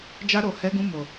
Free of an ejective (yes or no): yes